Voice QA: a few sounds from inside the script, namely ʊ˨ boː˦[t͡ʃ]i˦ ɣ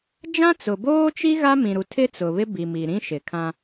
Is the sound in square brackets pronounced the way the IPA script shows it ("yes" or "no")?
yes